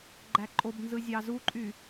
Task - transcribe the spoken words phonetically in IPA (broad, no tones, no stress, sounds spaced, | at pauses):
ɡ͡ǃ æ ǃʼ o b n z ɯ zʲ ɑ z u ǃʼ y